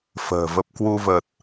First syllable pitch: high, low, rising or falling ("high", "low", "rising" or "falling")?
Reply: low